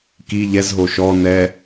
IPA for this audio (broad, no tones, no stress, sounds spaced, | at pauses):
k i ʎ ɛ z ɦ o ʃ ɔ n ɛ